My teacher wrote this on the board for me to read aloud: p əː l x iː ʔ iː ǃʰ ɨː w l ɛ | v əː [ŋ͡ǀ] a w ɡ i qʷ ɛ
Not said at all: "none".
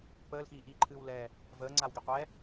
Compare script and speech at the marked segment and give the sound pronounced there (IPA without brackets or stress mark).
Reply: ŋ͡ǀ